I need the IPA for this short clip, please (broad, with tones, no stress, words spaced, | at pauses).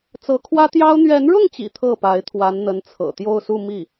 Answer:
t͡sɤ˧˥ kʰwä˥t̪jɑ˥ʊ̯ n̪ɥɛ˧˥nɻʊ˥˩ŋt͡ɕḭ˨˩ t̪ʰɤ˥˩pa˧˥ɪ̯t̪ʰwa˧˥n n̪ə˧˥nt͡sʰɤ̰˨˩t̪jo˥˧ʊ̯su˥˧ mi˥˩